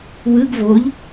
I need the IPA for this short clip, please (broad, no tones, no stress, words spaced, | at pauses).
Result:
wɯɡ voʎ